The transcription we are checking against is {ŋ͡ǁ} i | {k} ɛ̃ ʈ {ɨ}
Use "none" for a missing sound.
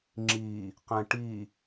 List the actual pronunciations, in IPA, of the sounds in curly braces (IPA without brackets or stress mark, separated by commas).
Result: ŋ͡ǁ, q, i